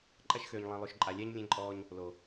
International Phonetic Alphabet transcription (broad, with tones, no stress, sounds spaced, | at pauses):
ǃʼ ɐ˦ ʃ x øː˨ ɲ lˠ ẽ˨ lˠ ø˨ ʃ ǃʼ a˨ lʲ ɛː˦ ɲ lʲ ẽ˦ ǃʼ ɔː˦ ɲ | l o˨